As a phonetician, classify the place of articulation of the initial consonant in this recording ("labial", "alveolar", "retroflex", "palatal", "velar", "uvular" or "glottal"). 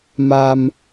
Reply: labial